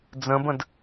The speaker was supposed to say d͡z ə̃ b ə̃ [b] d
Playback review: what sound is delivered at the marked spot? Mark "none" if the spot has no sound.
none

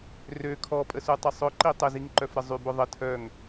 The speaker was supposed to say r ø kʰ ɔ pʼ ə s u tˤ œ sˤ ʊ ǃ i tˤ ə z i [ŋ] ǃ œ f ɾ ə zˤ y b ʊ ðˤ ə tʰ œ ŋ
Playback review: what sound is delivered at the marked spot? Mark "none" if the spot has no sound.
ŋ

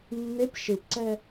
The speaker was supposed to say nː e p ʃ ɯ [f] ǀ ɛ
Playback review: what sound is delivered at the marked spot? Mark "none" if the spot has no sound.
p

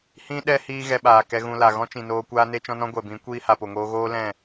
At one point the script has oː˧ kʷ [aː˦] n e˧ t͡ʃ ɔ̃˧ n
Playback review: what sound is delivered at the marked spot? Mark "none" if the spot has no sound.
aː˧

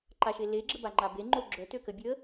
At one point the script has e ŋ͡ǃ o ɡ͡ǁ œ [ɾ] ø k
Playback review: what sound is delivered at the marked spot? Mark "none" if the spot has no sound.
t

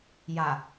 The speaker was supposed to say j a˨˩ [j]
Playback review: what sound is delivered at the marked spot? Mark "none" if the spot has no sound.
none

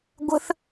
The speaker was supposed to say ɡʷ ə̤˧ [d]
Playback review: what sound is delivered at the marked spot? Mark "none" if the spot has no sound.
θ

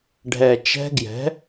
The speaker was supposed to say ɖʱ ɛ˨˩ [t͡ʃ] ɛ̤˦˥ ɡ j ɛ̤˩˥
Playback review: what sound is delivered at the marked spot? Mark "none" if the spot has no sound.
t͡ʃ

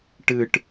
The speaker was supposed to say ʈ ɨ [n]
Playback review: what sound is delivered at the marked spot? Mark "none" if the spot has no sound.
ʈ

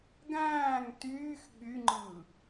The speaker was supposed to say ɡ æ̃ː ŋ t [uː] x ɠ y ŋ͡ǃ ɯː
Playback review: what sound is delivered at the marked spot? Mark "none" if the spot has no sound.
yː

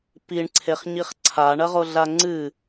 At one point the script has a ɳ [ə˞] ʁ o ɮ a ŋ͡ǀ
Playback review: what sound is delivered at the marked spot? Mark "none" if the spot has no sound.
ɐ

